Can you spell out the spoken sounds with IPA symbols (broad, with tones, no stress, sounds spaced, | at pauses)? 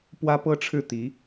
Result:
p w ä˥ p ɤ˥ ʈ͡ʂʰ ɻ̩˥˩ t̪ i˧˥